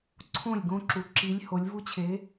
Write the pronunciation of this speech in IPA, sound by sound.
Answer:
ǀʰ õ˥˩ lʲ ɡ õ˦ ǁ u˩˧ ǁ i˨˥ lʲ h o˩˧ lʲ v u˦ t͡ɕʰ e˨˥

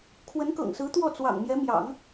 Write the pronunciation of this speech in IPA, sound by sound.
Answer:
kʰ w ə˧˥ n k ɤ̰˨˩ ŋ s ɹ̩˧˥ t̪ w ɔ˥˩ t͡s w ɑ̰˨˩ ŋ m j ɛ˧˥ m j ɑ̰˨˩˦ ŋ

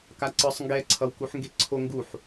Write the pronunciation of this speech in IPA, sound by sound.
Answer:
k a ǀ ɯ sˤ ŋ ɡ ɛ ǀʰ ʌ w k u ħ ŋ ɡ e ǀʰ o ŋ ɡ u ħ

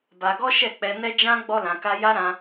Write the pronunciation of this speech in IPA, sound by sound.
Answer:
b a˧ ɡ ɔ˦ ʃ ɛ˦˨ k͡p ɛ˧ n ɛ˦ d͡ʒ ã˦ ɡ͡b ɔ˦ l ã˧ k a˦ j a˦ ɾ ã˧

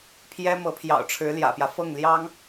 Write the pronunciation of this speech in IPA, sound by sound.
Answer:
pʰ j ɛ˥ m ɤ˧˥ pʰ j ɑ̰˨˩ ʊ̯ ʈ͡ʂʰ ɻ̩˧˥ l j ä̰˨˩ p j ä˦ f ɤ˥˩ ŋ l j ɑ˥ ŋ

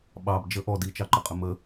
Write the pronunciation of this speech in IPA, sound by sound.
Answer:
ɓ ɑ b d͡ʒ ə ʔ ɔ d i t͡ʃ ɑ ǃ ə qʼ ə m ə

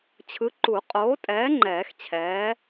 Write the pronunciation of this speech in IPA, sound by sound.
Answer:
t͡ɕʰ ɯ˨˥ ǃ u˨˩˦ qʼ oː˨˥ tʼ ɛː˨˥ ŋ͡ǃ ɛː˨˩˦ x t͡ɕʰ ɛː˨˥

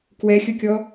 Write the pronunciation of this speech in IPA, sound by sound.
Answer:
k w ɛ xʲ ʊ kʲ ɔ

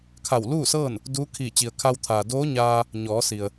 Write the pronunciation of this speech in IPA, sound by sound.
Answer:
kʰ a˧˩ w l uː˥˨ s ɤː˥˨ n | d uː˧˥ kʰ iː˧˩ t͡ɕ i˩ ə̯ kʰ a˧ w t̪ʰ aː˩ d oː˧˥ ɲ aː˧ | ɲ ɔː˩˧ s i˩ ə̯

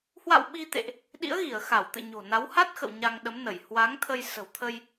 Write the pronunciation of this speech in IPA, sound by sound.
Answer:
h w a̰˧˨ w ɓ i˧ t̪ ḛ˧˨ ʔ | ɗ ḭ˧˥ ə̯ ɣ i˧˩ ə̯ x a˧˩ w t̪ ɨ̰˧˨ ɲ o̤˨˩ n a˨˦ w h a˦˥ t̚ x ə̰˧˨ w ɲ a˧ ŋ ɗ ə˨˦ m n ə˧˩ j h w a˨˦ ŋ t̪ʰ ə˧ j s ə̤˨˩ w t̪ʰ ə˧ j

